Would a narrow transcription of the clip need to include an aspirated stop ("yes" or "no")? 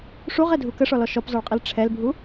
yes